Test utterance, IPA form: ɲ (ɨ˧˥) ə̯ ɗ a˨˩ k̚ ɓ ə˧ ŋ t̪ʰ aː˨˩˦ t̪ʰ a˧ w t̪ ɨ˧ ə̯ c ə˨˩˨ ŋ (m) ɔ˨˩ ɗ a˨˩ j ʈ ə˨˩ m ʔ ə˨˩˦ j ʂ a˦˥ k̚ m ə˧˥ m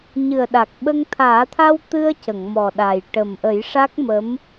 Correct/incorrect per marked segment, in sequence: incorrect, correct

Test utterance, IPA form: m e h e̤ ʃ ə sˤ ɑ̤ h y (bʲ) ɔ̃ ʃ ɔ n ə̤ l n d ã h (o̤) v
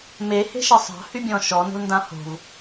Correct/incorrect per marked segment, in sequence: correct, correct

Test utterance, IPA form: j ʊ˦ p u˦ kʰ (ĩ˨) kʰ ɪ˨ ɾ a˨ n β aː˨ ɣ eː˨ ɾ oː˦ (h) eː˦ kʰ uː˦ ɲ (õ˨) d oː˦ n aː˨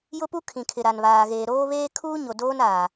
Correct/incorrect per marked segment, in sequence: correct, incorrect, incorrect

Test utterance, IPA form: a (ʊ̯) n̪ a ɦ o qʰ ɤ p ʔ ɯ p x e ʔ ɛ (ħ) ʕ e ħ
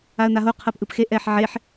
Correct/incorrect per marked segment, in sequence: incorrect, correct

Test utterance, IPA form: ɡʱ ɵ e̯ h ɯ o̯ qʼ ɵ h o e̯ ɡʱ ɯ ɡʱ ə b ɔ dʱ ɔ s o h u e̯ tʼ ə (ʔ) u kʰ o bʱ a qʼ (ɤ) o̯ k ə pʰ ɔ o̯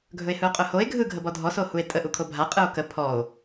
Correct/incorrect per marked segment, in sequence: correct, incorrect

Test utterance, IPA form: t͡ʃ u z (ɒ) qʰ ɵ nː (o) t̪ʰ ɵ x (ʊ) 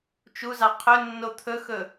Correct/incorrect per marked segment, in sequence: incorrect, correct, incorrect

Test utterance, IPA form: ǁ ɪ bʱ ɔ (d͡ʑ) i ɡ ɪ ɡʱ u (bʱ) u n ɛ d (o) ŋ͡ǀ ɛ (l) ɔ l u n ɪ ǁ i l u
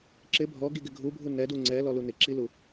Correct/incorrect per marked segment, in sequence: incorrect, correct, incorrect, correct

